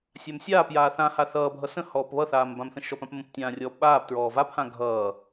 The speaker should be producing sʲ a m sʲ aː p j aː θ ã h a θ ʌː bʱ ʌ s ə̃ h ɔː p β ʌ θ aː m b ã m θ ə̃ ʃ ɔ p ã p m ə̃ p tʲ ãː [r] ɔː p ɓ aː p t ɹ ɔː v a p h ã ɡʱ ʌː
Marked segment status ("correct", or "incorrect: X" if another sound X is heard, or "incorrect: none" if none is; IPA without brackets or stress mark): incorrect: rʲ